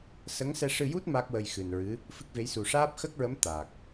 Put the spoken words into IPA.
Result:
s ə˧˥ ŋ s ɛ˧ ʂ ɨ˧ j u˦˥ t̚ m a˦˥ k̚ w ə˧ j x ɨ˨˩ n ɹ ɨ˧˥ | f ɨ˦˥ k̚ v e˧˥ j s u˨˩ ʂ aː˦˥ p̚ x ə˦˥ k̚ ɹ ə˧˥ m t̪ a˨˩ k̚

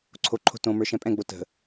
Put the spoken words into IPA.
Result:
ǀʰ o ǃʰ o̤ t õ m ə˞ ʃ ɛ̃ pʼ ɛ̃ ɡ͡b o t ə̤

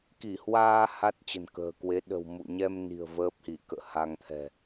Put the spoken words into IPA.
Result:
k i˧˩ h w aː˧ h a˦˥ t̚ t͡ɕ ə̤˨˩ n k ə̤ː˨˩ k w e˨˦ ɗ ə̤˨˩ w m ṵ˧˨ ɲ ɛ˧ m n i̤˨˩ ə̯ v əː˦˥ p̚ h i˧˩ k ə̰ː˧˨ h a˧ ŋ t̪ʰ ɛ̤˨˩

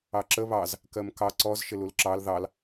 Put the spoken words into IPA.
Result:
ɑ ǁ ə β ɑ z | k ɜ m k ɑ ǀ ɔ z ʃ ɪ l u l ǁ ɑ l ð ɑ l

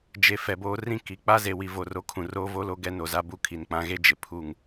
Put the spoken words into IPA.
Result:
d͡ʒ e˨ f ɛ˨ b oː˦ r ĩ˦ k i˨ k͡p a˦ z e˨ w i˨ v o˨ r o˨˦ kʰ ũ˨ r oː˦ v o˦ l o˦ ɡ ɛ˦ n o˨ z a˦ b u˦ kʰ i˨ n k͡p ã˨˦ ɣ e˦ d͡ʒ ɪ˨ pʰ u˦˨ ŋ

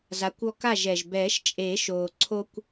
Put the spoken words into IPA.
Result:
z a˨˥ kʷ ɔ˦ k a˥˨ ʒ ɛ˨ ʒ b ɛː˨˩˦ ʃ t͡ʃʼ e˨˩˦ ʃ oː˨ ǀʰ o˦ kʷ

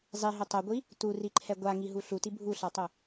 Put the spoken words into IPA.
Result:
zˤ i ɦ ɵ tˤ o ɡʷ i | t u r i ǃʰ ɛ ɡʷ a ŋ i ɦ u ɬ u t i bʱ u ɬ a tˤ ɵ

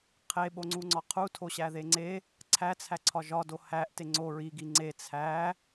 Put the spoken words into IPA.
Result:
qʰ e ɓ o ŋ͡ǀ u ŋ͡ǀ ɒ qʰ u tʰ o ɕ æ ð e ŋ͡ǀ e | ǀʰ æ t͡sʰ æ ǀʰ ɒ ʒ ɒ d o h æ ʔ t e ŋ͡ǀ o ɹ i ɡ i ŋ͡ǀ e t͡sʰ æ

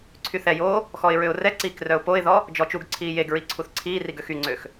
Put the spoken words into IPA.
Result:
ǀʰ y θ ɛ j oː | x ɔ ɪ̯ ɹ ø ʊ̯ r ɛ ǀ iː k r œ ʊ̯ p o ɪ̯ ð ɔ | d͡ʒ ɔ t͡ʃ u ɡ ǀʰ iː j e ɡ ɹ i ǀʰ u θ ǀʰ iː r i ɡ ø x y ŋ͡ǀ ø x

